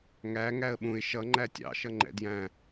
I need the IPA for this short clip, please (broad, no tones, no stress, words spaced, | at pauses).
ŋæ ŋæə̯ɓũɪ̯ ʃʌ ŋ͡ǃætʲɑ̰ ʃʌŋ͡ǃɛ̰djæ̃